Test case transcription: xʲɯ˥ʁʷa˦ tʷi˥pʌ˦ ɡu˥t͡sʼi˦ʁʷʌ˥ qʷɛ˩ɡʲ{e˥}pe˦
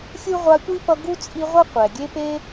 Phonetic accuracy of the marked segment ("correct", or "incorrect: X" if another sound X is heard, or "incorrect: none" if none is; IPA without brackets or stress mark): incorrect: e˦